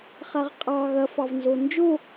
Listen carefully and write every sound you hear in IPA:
χ a ʁ qʼ ɑ ɣ ɐ f ɑ v n z o n d͡ʒ o

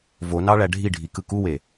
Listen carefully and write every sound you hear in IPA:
v o n ɑ ɭ æ ɖʱ i ɖʱ i k ɯ k u w e

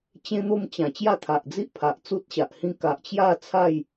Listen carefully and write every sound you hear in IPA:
t͡ɕ ẽ˦ n̪ o˥˧ m t͡ɕ ã˨˩ t͡ɕ j a˥˧ t̪ʰ a˨ ʔ d͡z i˦ ʔ pʰ a˨ ʔ t͡s u˦ t̚ ɕ a˨ ʔ h ĩ˦ k a˨ ʔ t͡ɕ j a˥˧ t͡sʰ a˥˧ j

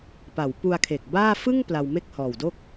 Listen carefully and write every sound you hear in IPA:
p a˩˦ w p u˧ a̯ kʰ e˨˩ k̚ b aː˥˩ f ɯ˥˩ ŋ p l a˧ w m e˥˩ k̚ h ɔː˨˩ w d o˥˩ k̚

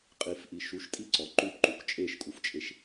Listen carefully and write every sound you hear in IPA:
qʼ i f ʔ i ʃ u ʃ tʼ i ǀ ɔ ǃ u p ǃ u k t͡ʃʼ e ʃ kʼ u f t͡ʃʼ e ʃ

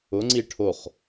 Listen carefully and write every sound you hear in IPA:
ʊ ŋ͡ǀ i ʈʰ o χ

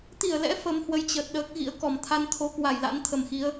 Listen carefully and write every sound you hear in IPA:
t̪ i˧˩ ə̯ l ɛ̰˧˥ f ə˨˦ m h w ə˨˦ j t͡ɕ ə˨˩ t̚ ɗ əː˦˥ k̚ ɣ ḭ˧˥ ə̯ k ɔ˧˩ m t̪ʰ a˧ n t̪ʰ o˨˦ k w a˧˩ j l a̰˧˥ n t̪ʰ ə˨˩ m x i˨˦ ə̯

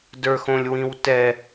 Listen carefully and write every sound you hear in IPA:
d ə˞ x õ lʲ w ĩ w t ɛ

